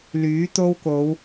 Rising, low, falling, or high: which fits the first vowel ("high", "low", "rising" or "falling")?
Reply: rising